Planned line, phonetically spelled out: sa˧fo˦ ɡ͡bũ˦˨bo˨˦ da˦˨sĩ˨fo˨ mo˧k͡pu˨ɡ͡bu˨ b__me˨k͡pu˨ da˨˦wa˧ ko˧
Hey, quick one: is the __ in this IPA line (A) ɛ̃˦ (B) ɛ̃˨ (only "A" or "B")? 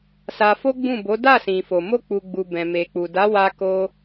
B